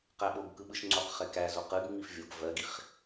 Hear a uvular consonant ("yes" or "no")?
yes